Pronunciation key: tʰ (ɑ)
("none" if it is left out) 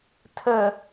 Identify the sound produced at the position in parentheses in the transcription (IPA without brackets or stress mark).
ə